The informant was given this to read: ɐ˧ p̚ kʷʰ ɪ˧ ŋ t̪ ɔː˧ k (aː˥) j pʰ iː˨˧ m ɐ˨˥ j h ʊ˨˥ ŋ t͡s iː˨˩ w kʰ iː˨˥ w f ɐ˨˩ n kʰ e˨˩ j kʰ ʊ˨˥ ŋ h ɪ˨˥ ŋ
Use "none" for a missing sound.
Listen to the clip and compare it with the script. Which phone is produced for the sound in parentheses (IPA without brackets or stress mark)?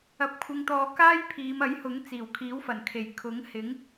aː˥